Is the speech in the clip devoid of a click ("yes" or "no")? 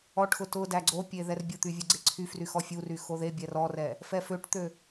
no